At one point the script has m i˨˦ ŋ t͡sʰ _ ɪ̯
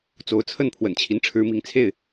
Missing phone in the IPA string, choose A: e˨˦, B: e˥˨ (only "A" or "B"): B